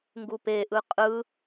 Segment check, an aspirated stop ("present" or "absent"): absent